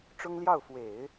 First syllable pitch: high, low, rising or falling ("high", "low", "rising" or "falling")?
high